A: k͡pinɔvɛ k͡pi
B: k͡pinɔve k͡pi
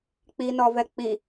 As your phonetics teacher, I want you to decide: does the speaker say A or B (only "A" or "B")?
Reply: A